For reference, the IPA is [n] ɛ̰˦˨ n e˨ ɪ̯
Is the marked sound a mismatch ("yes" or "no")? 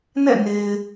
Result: no